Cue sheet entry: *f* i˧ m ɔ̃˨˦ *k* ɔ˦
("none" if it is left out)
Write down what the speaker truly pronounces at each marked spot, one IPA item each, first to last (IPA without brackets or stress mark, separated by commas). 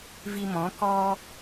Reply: v, k